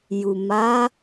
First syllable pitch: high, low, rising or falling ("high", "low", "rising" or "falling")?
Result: low